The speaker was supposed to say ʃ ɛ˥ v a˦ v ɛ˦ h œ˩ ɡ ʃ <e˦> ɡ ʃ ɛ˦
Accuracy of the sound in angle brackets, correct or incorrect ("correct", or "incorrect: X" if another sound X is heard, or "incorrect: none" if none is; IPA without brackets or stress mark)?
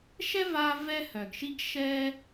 incorrect: i˦